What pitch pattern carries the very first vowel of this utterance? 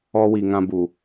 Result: high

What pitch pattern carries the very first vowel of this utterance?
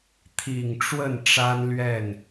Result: low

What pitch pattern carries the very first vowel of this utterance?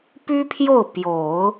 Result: high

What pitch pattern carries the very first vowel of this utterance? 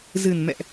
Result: low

